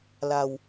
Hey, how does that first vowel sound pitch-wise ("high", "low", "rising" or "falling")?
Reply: low